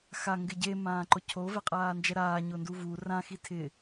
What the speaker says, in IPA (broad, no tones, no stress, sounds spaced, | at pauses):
x a ŋ ɡ ɪ ɟ e m ãː ǃ ʊ cʰ o v ɛ qʼ aː n d͡ʒ ɛ ɾ aː ɲ ʊ n d u v u r ã x i tʰ ɪ